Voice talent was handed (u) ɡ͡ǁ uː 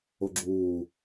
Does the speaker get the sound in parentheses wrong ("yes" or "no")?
yes